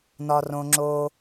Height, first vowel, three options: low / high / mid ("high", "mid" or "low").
low